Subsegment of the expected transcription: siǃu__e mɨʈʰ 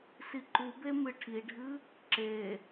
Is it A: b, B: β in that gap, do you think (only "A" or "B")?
A